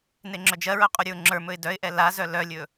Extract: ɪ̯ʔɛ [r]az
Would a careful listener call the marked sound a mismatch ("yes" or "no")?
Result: yes